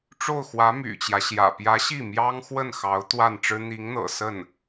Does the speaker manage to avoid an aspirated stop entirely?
yes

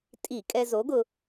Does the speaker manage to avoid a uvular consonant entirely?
yes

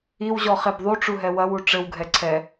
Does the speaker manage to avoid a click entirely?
no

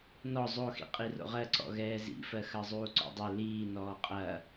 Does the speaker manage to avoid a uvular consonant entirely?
no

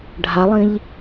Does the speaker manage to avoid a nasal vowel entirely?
no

